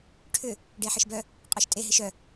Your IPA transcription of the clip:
ʈʰʏ | ɖeħɪʃbœ | qʼɔʃtʼe ɦɪʃœ

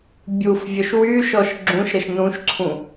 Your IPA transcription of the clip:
bʲuf vʲœʃwyʃɔʃ ɡ͡ǁũʃɾəʃ nũʃǀʰũ

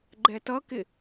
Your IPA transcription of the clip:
ɡ͡ǃɛtʌkɪ

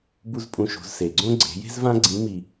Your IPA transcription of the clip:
bu˥zpʼũ˧ ʃo̤˩˧zse˩ɡ͡ǀõ˥ ɡ͡ǀe̤˩˧je̤˥zvã˥ ɡ͡ǀĩ˧˥mi˧

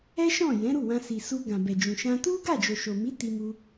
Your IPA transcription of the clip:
ɛ˦ʃɔ̃˦˨ jɛ̃˨˦ɾu˦˨wã˧ si˨ su˧ɡã˨ bɛ˨d͡ʒũ˨ ʃã˧ tu˦ɡa˦˨d͡ʒo˨ ʃo˨mi˨˦ ti˧mu˧

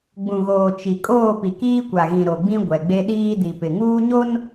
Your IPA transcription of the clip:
ɡ͡bũ˨ɣoː˨ t͡ʃi˨ kʼoː˦˨pi˨kiː˦ kʷa˨ɣĩ˨ ɾo˨ɡ͡bĩ˦ ɡʷɛ˨ɡ͡be˦ɗiː˦ di˨pɪ˨ŋuː˦ ɲo˦n

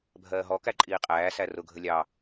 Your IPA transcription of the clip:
bʱɜːɦɔ kæǃʼiːqʼæː særʊ ɡʱəlʲɑ

